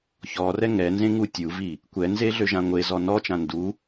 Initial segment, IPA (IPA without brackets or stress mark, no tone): ç